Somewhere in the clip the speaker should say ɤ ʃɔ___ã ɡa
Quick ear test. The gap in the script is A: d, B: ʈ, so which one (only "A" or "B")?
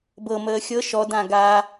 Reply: A